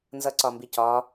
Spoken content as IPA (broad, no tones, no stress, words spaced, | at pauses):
nzʌǀɒmbicɒ